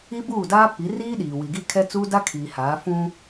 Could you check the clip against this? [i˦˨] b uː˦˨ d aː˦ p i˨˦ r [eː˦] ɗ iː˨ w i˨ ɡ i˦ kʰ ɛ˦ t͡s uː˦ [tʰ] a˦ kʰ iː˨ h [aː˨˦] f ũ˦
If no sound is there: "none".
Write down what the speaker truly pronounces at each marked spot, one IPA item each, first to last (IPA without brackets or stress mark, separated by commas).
i˦, iː˦, d, aː˨˦